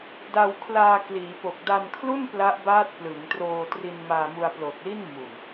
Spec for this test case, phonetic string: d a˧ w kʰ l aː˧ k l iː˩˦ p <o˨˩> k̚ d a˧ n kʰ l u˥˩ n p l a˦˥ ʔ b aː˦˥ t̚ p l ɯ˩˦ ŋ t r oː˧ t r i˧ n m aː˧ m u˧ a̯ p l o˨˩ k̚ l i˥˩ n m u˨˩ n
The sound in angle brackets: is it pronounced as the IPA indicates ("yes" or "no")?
yes